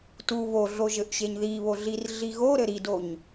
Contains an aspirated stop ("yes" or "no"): no